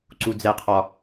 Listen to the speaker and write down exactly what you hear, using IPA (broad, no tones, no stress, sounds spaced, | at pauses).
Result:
ǀ u d͡z ɛ qʰ ɒ